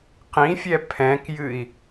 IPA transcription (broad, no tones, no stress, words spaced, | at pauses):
qĩfʲɛ pʰɛ̃kjɨi̯